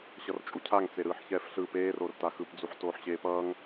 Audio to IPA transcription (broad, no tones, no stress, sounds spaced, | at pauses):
ɕ ʌ r t͡ʃʼ u cʰ a ŋ t͡s e ɾ ɯː ħ ç ɛː f ɬ ɯ p eː r o r t a x ɯ p d͡z u ħ t oː ħ ɕ eː p ʌː ŋ